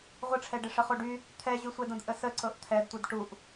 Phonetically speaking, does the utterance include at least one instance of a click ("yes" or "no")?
yes